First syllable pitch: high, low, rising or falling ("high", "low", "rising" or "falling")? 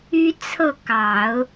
high